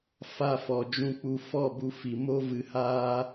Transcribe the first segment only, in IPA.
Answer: f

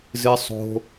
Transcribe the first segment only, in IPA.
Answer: z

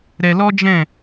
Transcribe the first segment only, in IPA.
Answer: ɾ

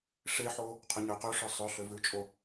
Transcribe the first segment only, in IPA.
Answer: ʂ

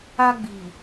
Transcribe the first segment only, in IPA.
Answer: a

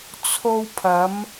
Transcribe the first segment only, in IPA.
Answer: t͡sʰ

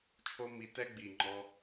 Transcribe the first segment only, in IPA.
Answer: t͡ʃʰ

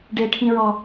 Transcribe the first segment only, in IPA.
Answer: ɖ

